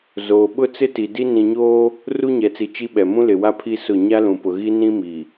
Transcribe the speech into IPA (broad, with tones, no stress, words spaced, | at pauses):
zoː˨ɓʊ˦ t͡sɪ˦ti˨di˦ nĩ˨ɲoː˦ | ru˦ɲɛ˨t͡si˨ t͡ʃi˦ɓɛ˨ mũ˦lɪ˨wa˦ pʰi˦sʊ˦˨ ɲa˦lũ˨pʊ˨ ɣi˦ nĩ˦mi˨